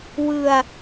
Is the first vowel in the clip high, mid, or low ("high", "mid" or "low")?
high